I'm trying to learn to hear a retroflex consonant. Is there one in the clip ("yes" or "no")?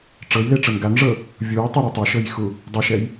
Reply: yes